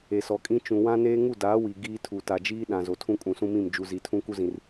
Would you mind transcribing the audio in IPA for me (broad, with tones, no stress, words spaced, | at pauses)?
e˨sɔ˨kʼĩ˦ t͡ʃũ˨wã˦neː˦ ŋu˦˨daː˨˦ wi˨ɡiː˦ tʰu˨ta˨d͡ʒiː˦ɗã˨ zo˨tʰũ˦kʼũ˨ sũ˦mĩ˦˨m d͡ʒu˨zi˨tʰũ˦ ku˦zĩ˨r